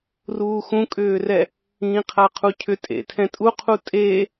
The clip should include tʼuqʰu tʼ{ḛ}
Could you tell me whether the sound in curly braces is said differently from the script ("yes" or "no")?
yes